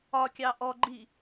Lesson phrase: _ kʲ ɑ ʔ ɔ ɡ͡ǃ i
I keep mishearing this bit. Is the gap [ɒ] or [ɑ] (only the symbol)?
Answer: ɒ